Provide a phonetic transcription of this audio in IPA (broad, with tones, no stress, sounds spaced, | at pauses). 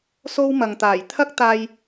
s o˧ w m ɐ˨ ŋ t̪ aː˨˩ j t̪ʰ ɐ˥ k̚ t̪ aː˧ j